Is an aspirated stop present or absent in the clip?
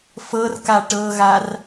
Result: absent